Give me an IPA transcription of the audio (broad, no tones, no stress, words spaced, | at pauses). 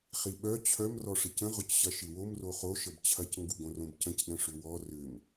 χiɓœ t͡ɕʰœm rɔʂɪcə̃ ʁʊcɕɐʃɪwom roχo ʃəbt͡ɕʰɐc ŋɡuɡõrõbcə̃c ɗə̃ʂʏwɔ rʏm